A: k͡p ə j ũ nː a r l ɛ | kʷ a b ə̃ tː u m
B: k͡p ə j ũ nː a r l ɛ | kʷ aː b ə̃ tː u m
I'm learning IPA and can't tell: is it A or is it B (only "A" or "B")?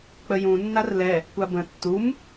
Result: A